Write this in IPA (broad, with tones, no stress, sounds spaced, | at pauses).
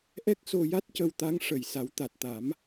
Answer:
ʔ ɛ˦˥ k̚ s o˧ j a˦˥ t̚ c ə˧ w t̪ a˧˥ ŋ ʂ ə˨˩ j s a˨˩˦ w t̪ a˨˩ t̚ t̪ a˨˩˦ m